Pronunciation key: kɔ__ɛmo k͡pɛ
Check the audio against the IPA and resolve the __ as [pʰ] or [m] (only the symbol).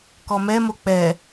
m